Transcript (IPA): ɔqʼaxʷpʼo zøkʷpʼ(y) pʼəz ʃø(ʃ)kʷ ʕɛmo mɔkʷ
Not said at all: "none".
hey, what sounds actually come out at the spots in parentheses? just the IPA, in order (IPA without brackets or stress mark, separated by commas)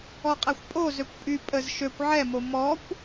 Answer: y, none